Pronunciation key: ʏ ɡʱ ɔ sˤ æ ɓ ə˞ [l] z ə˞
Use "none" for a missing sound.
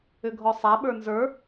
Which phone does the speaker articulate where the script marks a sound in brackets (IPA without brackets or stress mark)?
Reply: n